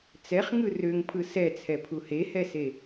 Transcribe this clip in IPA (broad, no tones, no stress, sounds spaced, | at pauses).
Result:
t͡s ɛ χ ŋ ɯ r ø ŋ pʰ ɯ s ɛ t͡sʰ ɛ pʰ u h e h ɛ s e